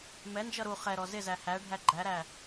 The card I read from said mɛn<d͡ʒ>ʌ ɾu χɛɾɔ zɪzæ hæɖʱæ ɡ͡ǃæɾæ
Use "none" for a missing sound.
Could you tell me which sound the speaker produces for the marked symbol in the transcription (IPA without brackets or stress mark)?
d͡ʒ